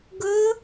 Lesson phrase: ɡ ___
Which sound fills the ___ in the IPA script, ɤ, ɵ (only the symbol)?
ɵ